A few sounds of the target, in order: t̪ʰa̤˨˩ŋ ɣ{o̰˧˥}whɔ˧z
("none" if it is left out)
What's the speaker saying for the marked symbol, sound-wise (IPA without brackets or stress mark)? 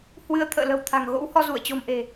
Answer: o̰˧˥